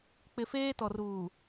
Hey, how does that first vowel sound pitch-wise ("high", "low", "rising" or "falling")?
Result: low